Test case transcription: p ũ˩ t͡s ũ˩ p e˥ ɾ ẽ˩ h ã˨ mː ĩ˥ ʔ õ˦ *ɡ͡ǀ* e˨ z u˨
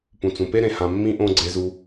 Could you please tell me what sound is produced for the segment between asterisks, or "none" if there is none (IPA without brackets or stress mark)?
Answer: ɡ͡ǀ